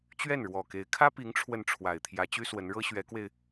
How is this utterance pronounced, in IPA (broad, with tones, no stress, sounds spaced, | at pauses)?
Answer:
t͡ɕ ɥ ɛ˥˩ n ɻ w ɔ˨˩ k e˧˥ ɪ̯ kʰ ä˥ p i˧˥ ŋ ʈ͡ʂʰ w ə˥˩ n ʈ͡ʂʰ w a˨˩ ɪ̯ t̪ʰ j ä˧˥ t͡ɕ y˥ s w ə˧˥ n ɻ ɤ˥ ɕ ɥ ɛ˧˥ k w e˧ ɪ̯